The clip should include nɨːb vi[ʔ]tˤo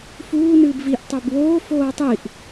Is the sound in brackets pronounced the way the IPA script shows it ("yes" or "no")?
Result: yes